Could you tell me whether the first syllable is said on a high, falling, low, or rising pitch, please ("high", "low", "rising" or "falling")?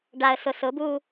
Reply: low